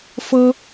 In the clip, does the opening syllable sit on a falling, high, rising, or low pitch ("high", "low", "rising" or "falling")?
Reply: high